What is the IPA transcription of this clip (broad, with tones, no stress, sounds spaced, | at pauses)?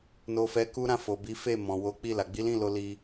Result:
n o˨ f ɛ˨ k u˧ ɾ ã˧ f o˨ b i˨˦ f e˦˨ m ɔ̃˨ w o˨˦ k͡p i˦˨ l a˨ ɡ͡b i˨˦ l ĩ˦˨ l o˧ l i˧